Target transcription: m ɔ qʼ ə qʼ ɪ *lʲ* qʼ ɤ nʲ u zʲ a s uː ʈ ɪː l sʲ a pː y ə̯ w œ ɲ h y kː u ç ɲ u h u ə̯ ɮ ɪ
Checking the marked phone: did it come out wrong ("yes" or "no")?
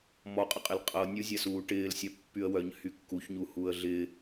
yes